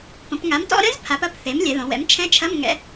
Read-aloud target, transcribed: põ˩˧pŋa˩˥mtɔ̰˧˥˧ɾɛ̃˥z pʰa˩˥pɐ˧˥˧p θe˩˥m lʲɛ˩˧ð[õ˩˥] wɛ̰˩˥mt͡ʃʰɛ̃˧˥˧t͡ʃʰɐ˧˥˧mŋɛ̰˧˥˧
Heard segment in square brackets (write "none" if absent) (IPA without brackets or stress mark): õ˩˧